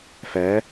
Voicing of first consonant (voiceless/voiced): voiceless